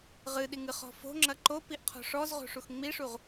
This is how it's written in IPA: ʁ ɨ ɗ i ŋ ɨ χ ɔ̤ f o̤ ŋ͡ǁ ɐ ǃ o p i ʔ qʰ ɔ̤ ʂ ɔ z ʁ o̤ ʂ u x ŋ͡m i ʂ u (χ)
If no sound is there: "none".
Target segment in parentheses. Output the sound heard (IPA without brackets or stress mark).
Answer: ʁ